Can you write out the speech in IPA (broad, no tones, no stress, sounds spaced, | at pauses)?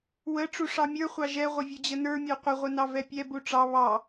w ə ʈ͡ʂ u ʂ ɑ mʲ ə˞ χʷ ɑ ʒ ɛ ʁʷ ə vʲ u d͡ʑ ə n ə˞ mʲ ə˞ qʷ ə ʁʷ ə n ɑ v ɛ pʲ ɛ b u ʈ͡ʂ ɑ β ɑ